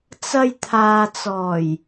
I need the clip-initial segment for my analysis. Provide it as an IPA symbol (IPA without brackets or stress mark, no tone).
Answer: t͡s